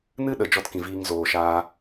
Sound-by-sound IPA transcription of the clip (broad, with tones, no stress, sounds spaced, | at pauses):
n ɨ˦ ɗ ə˨ d͡ʒ ɔ˦ t k ĩ˨ v iː˧ ŋ z oː˨ ʃ aː˦